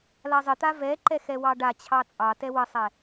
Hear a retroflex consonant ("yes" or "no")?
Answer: yes